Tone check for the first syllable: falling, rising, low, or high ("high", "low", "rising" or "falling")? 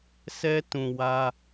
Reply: high